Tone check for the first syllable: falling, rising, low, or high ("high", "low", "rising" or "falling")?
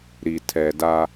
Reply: low